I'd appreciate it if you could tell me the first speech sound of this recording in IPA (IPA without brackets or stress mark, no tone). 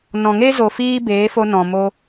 n